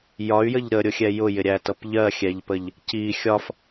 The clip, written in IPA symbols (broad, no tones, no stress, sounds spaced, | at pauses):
j ɒ y̯ j ə ʎ ɾ ə ɾʲ ʊ xʲ ɛ j ʊ j ɪ ɾʲ æ t ʌ p ʎ ɜ xʲ ɛ ʎ p ə ʎ | c i xʲ ɒ f